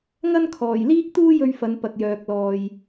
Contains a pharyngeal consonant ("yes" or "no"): no